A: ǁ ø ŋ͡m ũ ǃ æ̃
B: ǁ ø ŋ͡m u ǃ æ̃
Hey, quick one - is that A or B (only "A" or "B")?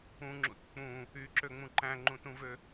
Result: A